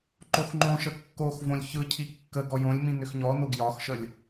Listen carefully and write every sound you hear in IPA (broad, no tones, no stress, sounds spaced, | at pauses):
ǃ o x ŋ͡ǃ õ ʃ ə kː o x v õ lʲ ç ɯ cʰ i kː ə ɡ ɔ j õ lʲ m ĩ n ʏ x ɲ ɔ n o ɡ j ɒ x ʃ ə lʲ